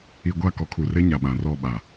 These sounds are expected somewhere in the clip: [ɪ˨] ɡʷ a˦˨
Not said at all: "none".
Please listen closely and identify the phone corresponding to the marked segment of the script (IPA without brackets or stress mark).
i˨